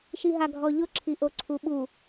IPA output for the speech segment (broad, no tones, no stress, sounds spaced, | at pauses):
ʃ i ɦ a ɡʱ ɔ ʎ ʊ ǁʰ i ʔ o ǀʰ u ɓ u